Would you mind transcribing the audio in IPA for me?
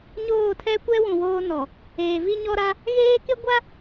ɲ oː˦˨ tʰ ɛ˦ kʷ ɛ˦ w ũ˨ w oː˦ n ɔ˨ | eː˨ v i˦ ɲ ɔ˦ ɾ a˦ | ɣ eː˦ k ɪ˦ ɡʷ a˦

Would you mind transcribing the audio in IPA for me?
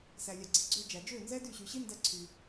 s æ˨ lʲ æ˨ ɡ͡ǀ i˨ ɡ͡ǀ ø˧ d͡ʒ æ˨ d͡ʒ ø˦˨ n z ɛ˦ d y˦˨ ɕ y˨ ɕ i˦ n d æ˦ ǀʰ y˧

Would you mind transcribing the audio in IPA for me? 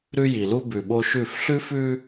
ɾ ʉ˦ j i˨ l u˦ b ʉ˨ ɓ o˦ ʃ ʉ˦˨ f ɬ ʉ˦ f ʉ˦

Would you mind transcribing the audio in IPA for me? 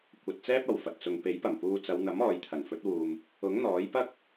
kʷ ɐ˨ t̚ t͡s ɛː˥ p̚ ɐ˨˩ w f ɐ˨ t̚ t͡s ʊ˨ ŋ p e˨˥ j p ɐ˨˩ m p uː˧ t͡s ɐ˨˧ w n̪ ɐ˨˥ m ɔː˨ j t̪ʰ ɐ˨˩ n f ɵ˨˥ t̚ w uː˨ m | ʊ˨˥ ŋ n̪ ɔː˨˥ j p ɐ˥ k̚

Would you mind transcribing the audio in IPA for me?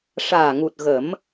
ʂ aː˨˩ ŋ u˨˩ t̚ ɣ ə˨˩˦ m

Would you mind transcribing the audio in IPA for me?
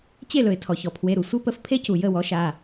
t͡ɕ e˥˩ l ɵ˩ ɪ̯ tʰ ɔ˩ ç ɔ˩ pʰ w e˩˧˩ ɾ u˩ sʷ e˦˥ p ə˩˥ f pʰ e˦˥ c u˩ j ə˥˩ w ɔ˩˥ ʃ a˩˧˩

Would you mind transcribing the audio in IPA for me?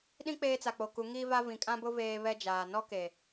ɗ ĩ˦ k͡p eː˦ t͡s a˨ k͡p o˨ k u˨˦ ŋ i˦ v a˦ v ĩ˨ kʼ ã˦ b ʊ˦ v eː˦ β ɛ˦ d͡ʒ aː˨ n ɔ˦ k e˨

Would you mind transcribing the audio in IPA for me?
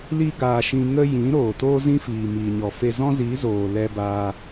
l i˦ ɡ aː˧ ʃ ĩ˧ ŋ ə˦ j ĩ˨˦ ɾ oː˨ t oː˦ z ĩ˦ f iː˨ m iː˨ ɲ ɔ˨ f e˧ z ɔ̃˦ z i˨˦ z oː˨ l ɛ˧ b aː˧

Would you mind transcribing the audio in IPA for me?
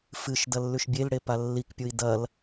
f ɨ ʃ d ɐ lː ʉ ʃ bʲ e l ɽ e p a lː i k pʲ u i̯ d ɐ l

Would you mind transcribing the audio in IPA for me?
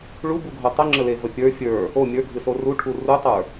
ɭ u b u ɡʱ o tˤ ə ŋ͡ǁ ə l e v ə pʲ ə˞ fʲ ə˞ | o mʲ ə˞ ɡʱ ɨ s o r u ʈʰ u r u tˤ ə˞

